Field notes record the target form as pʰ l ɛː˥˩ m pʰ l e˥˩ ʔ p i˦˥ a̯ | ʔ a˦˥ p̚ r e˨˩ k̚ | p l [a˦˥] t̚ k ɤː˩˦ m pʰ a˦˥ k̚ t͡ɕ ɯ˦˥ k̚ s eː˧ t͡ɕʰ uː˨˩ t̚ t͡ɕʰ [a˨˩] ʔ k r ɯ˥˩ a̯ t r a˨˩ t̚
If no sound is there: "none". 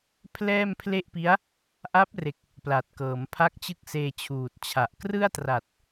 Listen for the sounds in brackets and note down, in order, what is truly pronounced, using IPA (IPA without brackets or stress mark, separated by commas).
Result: a˨˩, a˨˩